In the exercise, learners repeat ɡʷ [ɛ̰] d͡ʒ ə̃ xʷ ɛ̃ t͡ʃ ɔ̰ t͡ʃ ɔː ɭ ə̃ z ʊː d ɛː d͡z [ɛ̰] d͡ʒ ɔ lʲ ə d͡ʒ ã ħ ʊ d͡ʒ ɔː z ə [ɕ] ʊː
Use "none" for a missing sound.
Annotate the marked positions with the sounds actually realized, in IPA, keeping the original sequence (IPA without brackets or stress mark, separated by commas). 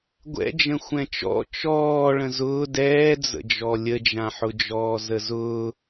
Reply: ɛ̰, ə̰, z